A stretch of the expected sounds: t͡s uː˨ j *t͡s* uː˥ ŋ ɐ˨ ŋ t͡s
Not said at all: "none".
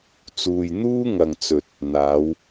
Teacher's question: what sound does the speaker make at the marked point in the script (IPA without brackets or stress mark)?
n̪